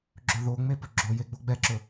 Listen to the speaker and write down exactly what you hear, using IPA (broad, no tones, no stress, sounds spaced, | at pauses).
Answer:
ɡ͡ǁ ɵ ð o ŋ͡m e p ɵ ɡ͡ǁ o j e ɡ͡b o ɡ͡b ɛ ǁ ɵ